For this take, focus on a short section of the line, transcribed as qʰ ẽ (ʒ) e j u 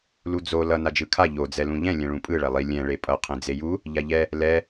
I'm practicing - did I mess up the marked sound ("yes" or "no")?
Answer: yes